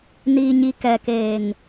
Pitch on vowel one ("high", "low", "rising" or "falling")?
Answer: low